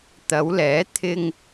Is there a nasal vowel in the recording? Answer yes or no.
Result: no